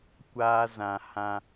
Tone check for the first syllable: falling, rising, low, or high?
high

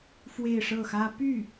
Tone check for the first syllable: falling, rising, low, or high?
falling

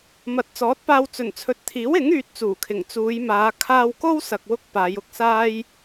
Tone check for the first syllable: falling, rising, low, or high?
low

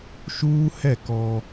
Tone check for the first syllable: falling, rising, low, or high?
high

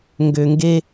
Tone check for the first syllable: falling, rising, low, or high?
low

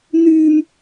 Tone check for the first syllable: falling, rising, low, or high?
high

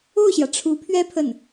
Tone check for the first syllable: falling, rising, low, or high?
falling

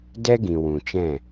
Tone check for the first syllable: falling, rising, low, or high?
high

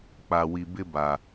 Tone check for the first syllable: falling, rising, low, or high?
low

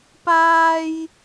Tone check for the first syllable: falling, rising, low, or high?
high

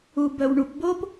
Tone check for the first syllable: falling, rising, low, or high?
low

